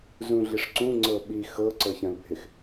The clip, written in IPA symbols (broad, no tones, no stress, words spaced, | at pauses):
zũɮiʂǀũ ŋ͡ǀɤɓi xɤ ǀɤçɐ̃lbʱɪx